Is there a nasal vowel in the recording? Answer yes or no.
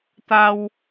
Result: no